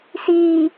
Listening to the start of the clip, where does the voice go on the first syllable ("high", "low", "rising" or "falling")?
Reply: low